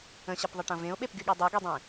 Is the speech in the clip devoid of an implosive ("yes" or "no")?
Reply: no